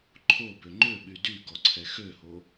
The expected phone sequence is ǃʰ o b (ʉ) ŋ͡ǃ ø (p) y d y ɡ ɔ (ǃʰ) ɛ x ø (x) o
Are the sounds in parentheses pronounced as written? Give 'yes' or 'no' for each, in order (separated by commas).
no, no, no, no